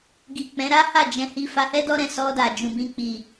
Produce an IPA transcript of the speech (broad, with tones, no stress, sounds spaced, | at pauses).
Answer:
ɡ i˨ k͡p ɛ̃˨˦ ɾ a˦ h a˦˨ d͡ʒ ɛ̃˧ h i˧ f a˧ h ɛ˦ d ɔ˦ ɾ ɛ̃˦˨ s ɔ˧ d a˨ d͡ʒ ũ˨ b ĩ˧ k͡p i˨